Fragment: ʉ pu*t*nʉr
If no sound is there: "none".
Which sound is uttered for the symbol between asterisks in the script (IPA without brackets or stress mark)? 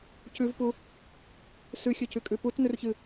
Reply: t